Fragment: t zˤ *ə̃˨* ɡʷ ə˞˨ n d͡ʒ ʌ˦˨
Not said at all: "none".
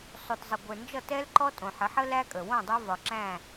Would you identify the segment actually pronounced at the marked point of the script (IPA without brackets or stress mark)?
ə˨